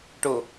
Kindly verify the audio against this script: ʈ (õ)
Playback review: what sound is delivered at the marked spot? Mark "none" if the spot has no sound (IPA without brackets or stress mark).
o